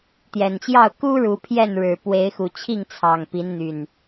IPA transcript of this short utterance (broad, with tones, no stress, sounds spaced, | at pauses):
t̪ j ɛ˨˩ n t͡ɕ j ɑ˥˨ ʊ̯ k u˦ ɻ u˨˦ pʰ j ɛ˥˨ n ɻ ɻ̩˨˩ p w e˨˦ ɪ̯ x u˨˩ t͡ɕʰ i˥˨ ŋ t͡sʰ ɑ˨˩ ŋ p i˨˦ n n̪ y˨˩ n